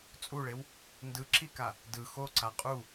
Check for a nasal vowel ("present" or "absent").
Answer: absent